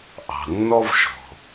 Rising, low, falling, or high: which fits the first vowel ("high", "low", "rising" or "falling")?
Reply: low